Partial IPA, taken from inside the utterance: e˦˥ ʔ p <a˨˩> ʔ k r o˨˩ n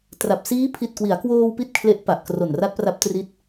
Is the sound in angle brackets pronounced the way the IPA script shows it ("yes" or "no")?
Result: yes